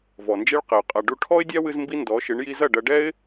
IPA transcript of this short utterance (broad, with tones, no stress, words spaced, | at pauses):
vɔ˨nd͡ʒe˦ɭqɘ˨ʊ̯ qʼa˨ɖu˧ ʈʰɔ˦ɪ̯dʲa˦wɨ˧z mbi˦ndɔ˨˦ʃɨ˨˦ɳ ji˧zɐ˦˨ɖɐ˧ɖɛ˦ɪ̯